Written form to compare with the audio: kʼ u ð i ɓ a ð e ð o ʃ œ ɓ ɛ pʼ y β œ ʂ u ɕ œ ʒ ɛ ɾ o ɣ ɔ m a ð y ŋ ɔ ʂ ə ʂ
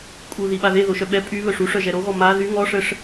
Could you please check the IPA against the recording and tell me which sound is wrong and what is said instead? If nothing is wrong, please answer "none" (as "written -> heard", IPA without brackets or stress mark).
ɕ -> ʂ